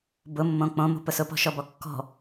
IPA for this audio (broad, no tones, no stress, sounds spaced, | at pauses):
b ʊ mː õ k͡p õ m o̤ p ʊ s ʊ p ɔ̤ ʃ ɔ b ɔ kː ɔ̤